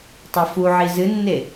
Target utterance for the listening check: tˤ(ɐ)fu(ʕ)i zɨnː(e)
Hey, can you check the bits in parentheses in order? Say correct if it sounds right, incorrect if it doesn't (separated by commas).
correct, correct, correct